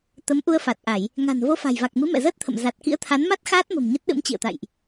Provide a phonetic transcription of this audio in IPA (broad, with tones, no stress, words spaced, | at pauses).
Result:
t̪ə˨˦mʔu˧ə̯fa˨˩t̚ʔa˧˩˨j | ŋa̤˨˩n vo˧fa̤˨˩jva˨˩k̚mɨ˨˦ mɛ̰˧˨zəː˦˥t̚t̪ʰə̰˧˨m za˨˩t̚kḭ˧˥ə̯t̪ʰa˨˦nma˦˥t̚ xaː˦˥t̚mə̤˨˩m ɲə˦˥t̚ɗɨ̰˧˥mt͡ɕḭ˧˨ə̯t̪a̰˧˨jʔ